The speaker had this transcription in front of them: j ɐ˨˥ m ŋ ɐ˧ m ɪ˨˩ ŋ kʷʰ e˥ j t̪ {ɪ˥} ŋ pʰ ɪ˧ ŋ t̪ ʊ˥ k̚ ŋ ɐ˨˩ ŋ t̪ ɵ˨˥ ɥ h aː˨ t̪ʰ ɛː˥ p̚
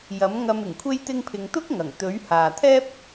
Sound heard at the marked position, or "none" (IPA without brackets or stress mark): ɪ˥